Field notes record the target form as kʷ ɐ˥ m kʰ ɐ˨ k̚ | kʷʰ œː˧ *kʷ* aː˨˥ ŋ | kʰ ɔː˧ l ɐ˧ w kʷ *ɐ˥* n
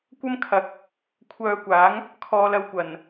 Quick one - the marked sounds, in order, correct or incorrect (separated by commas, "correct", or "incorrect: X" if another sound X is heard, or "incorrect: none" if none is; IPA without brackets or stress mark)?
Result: correct, incorrect: ɐ˨˩